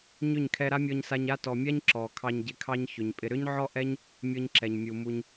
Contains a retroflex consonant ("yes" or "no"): no